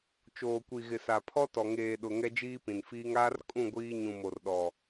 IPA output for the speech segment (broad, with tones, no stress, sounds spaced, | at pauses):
t͡ʃ oː˨ kʷ i˨ ɣ ɪ˨ s a˨ pʰ ɔ˦ t ɔ˨ ŋ eː˨ ɗ ʊ˨ ŋ ɛ˦ d͡ʒ iː˦ p ĩ˨ n f iː˦ ŋ aː˦ r kʼ ũ˦˨ ɡʷ iː˦ ɲ ũ˨ m o˨ r ɗ ɔ˨